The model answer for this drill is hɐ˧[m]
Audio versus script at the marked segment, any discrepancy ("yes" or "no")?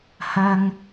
yes